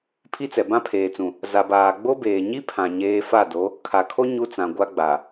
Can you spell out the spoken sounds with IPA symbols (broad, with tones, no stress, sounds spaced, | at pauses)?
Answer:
pʰ i˦ t͡s ɛ˨ b ã˦ pʰ eː˨ t͡s ũ˨ | z a˨ b aː˨ ɡ͡b o˦ b eː˨ ɲ i˦ pʰ ã˨ ɲ eː˦ f a˦˨ d o˨˦ | kʰ a˨ kʰ o˦ ɲ u˦ t͡s ã˨ ɡʷ a˦ ɡ͡b a˨